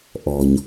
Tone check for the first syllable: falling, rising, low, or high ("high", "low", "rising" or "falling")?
low